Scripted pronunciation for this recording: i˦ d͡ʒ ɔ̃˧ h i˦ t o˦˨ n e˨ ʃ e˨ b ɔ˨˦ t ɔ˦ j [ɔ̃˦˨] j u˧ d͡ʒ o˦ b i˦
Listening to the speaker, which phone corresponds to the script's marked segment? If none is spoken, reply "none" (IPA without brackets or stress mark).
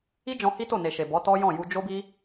ɔ̃˦˨